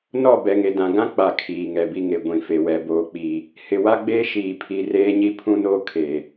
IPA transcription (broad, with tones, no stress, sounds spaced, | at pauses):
n ɔ˦˨ b ɛ˨ ŋ e˨ d ã˨ ɡ ã˦ k͡p a˨ kʰ iː˨ ŋ ɛ˨ b i˦ ŋ e˨ ɡʷ ĩ˨ f e˨ w ɛ˨ b oː˨ k͡p i˨ | h ɪ˨ w a˦ ɡ͡b eː˦ ʃ iː˨ pʰ i˨ r eː˦ ɲ i˦ pʰ ũ˦ n oː˦ kʰ e˨